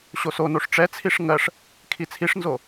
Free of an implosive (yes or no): yes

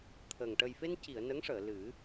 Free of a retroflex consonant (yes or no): no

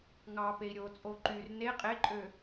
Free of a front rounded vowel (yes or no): no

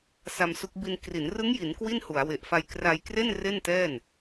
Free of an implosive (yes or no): yes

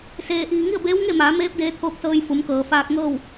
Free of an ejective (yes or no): yes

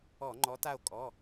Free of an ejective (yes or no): no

